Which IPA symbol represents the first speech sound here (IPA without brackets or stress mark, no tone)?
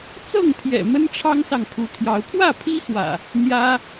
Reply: t͡s